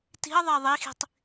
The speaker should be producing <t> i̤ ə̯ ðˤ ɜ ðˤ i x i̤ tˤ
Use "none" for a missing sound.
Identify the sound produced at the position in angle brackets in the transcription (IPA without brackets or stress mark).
t